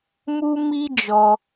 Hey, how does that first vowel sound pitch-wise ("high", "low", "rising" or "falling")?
high